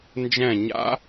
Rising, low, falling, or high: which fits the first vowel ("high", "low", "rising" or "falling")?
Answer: falling